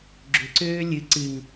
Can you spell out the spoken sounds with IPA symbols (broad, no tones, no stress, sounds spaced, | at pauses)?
ɡ͡ǁ ʏ ǀ øː lʲ ɨ ǀ ɨ ŋ